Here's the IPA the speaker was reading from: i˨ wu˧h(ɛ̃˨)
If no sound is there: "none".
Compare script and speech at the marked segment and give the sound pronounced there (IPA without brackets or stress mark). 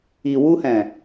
ɛ̃˨